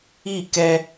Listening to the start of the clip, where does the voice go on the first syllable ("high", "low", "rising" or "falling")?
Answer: falling